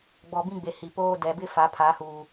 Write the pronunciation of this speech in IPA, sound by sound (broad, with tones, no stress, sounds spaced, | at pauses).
ɡ͡b ɔ˨ b ĩ˦ ɡ͡b e˨ h i˨ p oː˦ d ɛ˨ b ɪ˦ f a˨˦ pʰ a˨˦ h uː˨